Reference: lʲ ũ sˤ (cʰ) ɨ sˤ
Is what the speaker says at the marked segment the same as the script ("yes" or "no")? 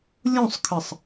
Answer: no